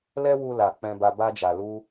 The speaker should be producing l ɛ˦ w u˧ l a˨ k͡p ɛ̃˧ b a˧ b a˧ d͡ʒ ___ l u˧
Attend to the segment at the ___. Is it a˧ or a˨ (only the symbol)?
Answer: a˨